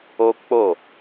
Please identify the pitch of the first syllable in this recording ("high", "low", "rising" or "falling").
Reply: high